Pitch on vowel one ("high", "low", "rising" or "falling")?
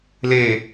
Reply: low